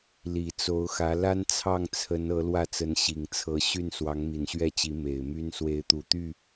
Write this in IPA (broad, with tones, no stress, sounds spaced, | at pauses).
l i˨˩ t͡s o˧˥ ʊ̯ x ä˧˥ l a˥ n t͡sʰ ɑ˥˩ ŋ t͡sʰ ə˧˥ n ɤ˧˥ l w ä˥˩ t͡s ə˧˥ n ɕ i˨˩ ŋ t͡sʰ ɤ˧˥ ɕ y˥˩ n s w ɑ˧˥ ŋ m i˨˩ n ɕ ɥ ɛ˥˩ t͡ɕ i˧˥ m e˨˩ ɪ̯ m y˥ n s w e˧˥ ɪ̯ t̪ u˨˩ t̪ y˥˩